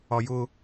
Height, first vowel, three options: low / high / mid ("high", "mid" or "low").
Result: low